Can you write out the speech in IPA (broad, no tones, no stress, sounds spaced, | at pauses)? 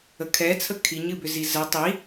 ə kʰ ɛ t͡sʰ ə kʰ i ɲ ɨ b ʏ z i z ə tˤ i